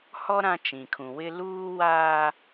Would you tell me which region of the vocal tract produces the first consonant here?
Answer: throat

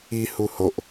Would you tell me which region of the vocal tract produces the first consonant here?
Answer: throat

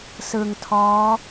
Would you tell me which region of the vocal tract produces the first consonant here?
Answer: tongue tip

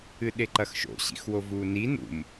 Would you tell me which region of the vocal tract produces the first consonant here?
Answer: tongue tip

